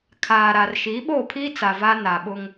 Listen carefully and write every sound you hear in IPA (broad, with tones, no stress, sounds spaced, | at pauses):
kʰ aː˨ ɾ a˨ r ʃ i˨˦ ɓ o˦˨ pʰ iː˦ t͡s a˨ v a˦ n a˨ ɓ ʊ˦ ŋ